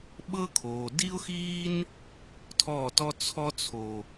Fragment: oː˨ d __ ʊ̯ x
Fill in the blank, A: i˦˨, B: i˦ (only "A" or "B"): B